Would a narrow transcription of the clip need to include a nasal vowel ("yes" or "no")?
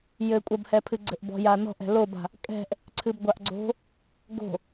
no